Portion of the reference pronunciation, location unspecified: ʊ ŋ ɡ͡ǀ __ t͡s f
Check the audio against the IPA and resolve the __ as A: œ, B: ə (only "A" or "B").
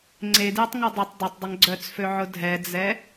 A